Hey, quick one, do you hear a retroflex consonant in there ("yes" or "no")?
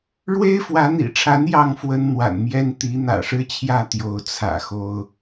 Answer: yes